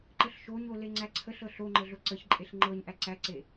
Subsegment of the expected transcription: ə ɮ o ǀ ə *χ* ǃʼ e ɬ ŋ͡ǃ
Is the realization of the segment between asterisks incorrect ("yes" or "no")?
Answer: yes